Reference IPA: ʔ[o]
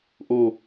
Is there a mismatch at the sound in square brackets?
no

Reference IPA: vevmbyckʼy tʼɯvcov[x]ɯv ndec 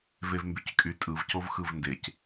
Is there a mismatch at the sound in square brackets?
no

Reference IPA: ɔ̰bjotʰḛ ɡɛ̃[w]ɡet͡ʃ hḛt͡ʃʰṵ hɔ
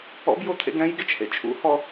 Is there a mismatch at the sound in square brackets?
yes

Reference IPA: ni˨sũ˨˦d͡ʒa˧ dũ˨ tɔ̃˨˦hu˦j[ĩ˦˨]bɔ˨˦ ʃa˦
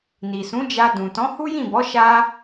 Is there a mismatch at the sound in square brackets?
no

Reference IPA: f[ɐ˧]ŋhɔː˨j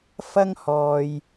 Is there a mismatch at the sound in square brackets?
yes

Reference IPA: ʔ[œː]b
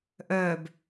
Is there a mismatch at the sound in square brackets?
no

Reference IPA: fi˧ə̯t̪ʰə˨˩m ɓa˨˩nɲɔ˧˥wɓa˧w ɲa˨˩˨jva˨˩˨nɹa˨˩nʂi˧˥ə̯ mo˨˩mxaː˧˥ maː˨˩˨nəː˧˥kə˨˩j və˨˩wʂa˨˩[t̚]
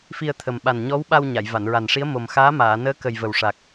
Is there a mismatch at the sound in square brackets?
yes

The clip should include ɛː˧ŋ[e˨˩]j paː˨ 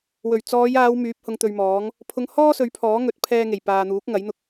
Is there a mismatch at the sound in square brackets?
no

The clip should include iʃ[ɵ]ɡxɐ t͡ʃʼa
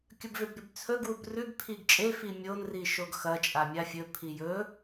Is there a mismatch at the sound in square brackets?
yes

